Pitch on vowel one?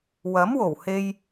rising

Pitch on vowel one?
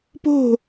falling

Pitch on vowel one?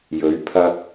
rising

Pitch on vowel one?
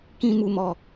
low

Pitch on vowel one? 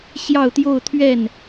falling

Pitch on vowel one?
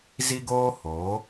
high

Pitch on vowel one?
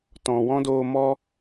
low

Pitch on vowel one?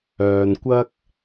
low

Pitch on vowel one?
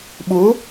rising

